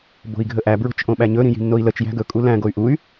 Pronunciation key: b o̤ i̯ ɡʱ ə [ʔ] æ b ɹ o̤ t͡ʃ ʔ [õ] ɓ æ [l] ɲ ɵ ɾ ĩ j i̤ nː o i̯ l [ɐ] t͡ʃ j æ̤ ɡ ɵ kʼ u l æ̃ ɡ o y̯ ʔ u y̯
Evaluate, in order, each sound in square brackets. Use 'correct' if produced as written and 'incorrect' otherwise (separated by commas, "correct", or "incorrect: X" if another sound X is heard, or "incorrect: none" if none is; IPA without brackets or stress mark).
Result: correct, correct, incorrect: none, incorrect: ə